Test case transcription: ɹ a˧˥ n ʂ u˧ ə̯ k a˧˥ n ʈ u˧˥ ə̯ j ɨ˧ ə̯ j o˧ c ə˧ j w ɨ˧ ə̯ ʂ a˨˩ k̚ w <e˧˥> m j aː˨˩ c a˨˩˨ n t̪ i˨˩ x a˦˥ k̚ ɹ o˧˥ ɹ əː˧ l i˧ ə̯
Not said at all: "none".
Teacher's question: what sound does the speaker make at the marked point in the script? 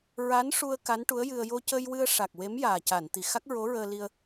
e˧˥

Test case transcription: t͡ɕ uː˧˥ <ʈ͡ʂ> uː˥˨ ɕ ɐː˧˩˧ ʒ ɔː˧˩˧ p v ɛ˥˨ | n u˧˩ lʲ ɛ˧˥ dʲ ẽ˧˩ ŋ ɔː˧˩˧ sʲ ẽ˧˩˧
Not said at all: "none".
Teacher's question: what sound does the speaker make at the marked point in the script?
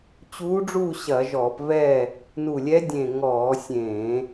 ɖ͡ʐ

